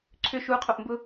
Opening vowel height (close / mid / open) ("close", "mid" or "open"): close